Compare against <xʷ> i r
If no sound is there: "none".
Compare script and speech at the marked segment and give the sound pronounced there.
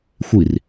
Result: xʷ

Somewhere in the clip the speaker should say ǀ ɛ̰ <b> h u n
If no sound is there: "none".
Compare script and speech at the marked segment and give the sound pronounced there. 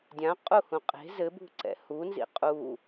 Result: none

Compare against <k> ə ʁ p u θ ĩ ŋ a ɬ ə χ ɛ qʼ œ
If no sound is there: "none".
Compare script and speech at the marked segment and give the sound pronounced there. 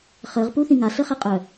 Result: χ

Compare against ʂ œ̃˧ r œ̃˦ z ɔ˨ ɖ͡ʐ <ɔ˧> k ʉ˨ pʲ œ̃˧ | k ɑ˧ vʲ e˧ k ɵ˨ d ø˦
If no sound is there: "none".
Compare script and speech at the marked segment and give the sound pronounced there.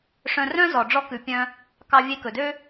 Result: ɔ˧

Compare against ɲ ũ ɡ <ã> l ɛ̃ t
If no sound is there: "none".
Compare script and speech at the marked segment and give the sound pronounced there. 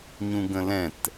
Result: ə̃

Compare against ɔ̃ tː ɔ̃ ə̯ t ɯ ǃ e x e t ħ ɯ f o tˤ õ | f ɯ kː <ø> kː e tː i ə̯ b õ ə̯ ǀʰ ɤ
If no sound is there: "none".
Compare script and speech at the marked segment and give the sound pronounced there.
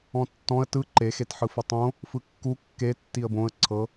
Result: u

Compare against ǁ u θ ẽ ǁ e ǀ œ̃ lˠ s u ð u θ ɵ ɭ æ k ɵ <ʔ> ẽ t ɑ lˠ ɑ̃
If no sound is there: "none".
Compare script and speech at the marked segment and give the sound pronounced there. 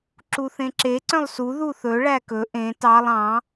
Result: ʔ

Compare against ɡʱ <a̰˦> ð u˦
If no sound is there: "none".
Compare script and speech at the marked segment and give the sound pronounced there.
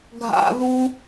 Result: a̰˦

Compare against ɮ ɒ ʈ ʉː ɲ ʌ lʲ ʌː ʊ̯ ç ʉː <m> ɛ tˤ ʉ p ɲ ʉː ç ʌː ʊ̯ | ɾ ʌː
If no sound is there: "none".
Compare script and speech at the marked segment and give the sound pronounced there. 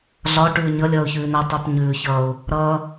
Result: n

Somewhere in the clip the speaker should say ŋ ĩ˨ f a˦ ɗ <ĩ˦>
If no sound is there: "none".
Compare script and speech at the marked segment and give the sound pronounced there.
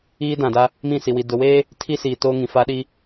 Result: i˦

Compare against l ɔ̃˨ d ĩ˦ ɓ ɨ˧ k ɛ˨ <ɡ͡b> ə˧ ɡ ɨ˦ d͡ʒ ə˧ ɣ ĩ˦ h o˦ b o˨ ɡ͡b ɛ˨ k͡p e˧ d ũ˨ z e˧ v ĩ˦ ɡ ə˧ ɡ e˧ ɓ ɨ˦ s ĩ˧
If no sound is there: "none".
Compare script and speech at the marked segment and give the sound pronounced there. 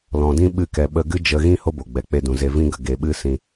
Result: ɓ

